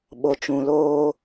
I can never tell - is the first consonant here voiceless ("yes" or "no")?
no